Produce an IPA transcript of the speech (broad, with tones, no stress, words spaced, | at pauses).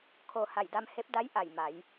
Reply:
kʰo˩ ha˧˩jda˧mhe˧˥p̚da˧˥j ʔa˧˩jma˩˧j